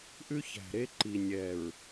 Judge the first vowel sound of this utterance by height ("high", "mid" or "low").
high